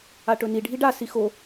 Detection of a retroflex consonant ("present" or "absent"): present